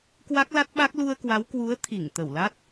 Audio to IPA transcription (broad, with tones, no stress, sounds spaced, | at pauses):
k w a˦˥ k̚ l a˦˥ t̚ ɓ a˦˥ k̚ l u˧ ə̯ k w a˨˦ w k w u˨˦ ə̯ t̪ʰ i˧˩ ŋ t̪ ə˧˩ w l a˦˥ t̚